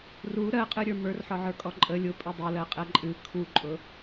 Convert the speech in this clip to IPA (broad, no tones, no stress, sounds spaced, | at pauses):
r u ɾ ɜ qʼ ɨ ɾʲ ə˞ m ə˞ r ħ ɔ ʕ ə˞ kʼ ɔ ǃʼ ə lʲ ʊ pʼ ɨ dˤ ʊ l ɜ qʼ ɛ ǃʼ ɨ kʰ u ǃʼ ʊ